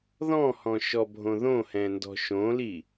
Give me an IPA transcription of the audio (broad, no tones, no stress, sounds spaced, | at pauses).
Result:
ð ɔ̃ h ɔ̃ ʃ ɔ bʱ õ ð õ h ɛ̃ n d ɔ̤ ʃ õ l i